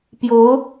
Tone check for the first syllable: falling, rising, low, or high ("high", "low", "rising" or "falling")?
rising